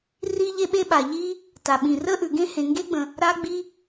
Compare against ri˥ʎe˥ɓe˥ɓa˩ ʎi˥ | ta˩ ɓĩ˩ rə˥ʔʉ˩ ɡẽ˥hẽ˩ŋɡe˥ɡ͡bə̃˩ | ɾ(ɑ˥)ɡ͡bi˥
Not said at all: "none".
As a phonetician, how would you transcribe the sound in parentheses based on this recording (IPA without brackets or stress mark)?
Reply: a˥